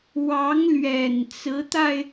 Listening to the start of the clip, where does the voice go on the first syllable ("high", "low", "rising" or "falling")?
rising